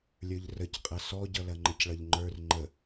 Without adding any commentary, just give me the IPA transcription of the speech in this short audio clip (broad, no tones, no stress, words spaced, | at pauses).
lʲə˞ʎrəc qʼɐsɔɟʌ lɐŋ͡ǃəcɭʌʎŋ͡ǃə˞r ŋ͡ǃə